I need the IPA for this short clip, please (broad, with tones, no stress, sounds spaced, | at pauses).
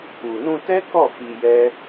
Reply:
u˨ n ũ˧ t ɛ˦ k ɔ˦˨ f i˧ j ɛ˦